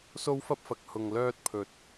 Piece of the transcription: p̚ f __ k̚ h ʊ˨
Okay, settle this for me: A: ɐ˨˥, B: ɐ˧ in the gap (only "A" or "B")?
A